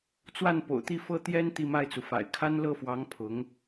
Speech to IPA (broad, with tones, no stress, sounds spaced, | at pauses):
t͡s w a˥˩ n p o̰˨˩ ʊ̯ t̪ i˥˩ f ɤ˥ t̪ j ɛ˥ n t̪ i˥˧ m a˥˩ ɪ̯ t͡s u˩ f a̰˨˩ ɪ̯ kʰ a˥ n l ɤ˥˩ f w ɑ˧˥ ŋ pʰ ʊ˧˥ ŋ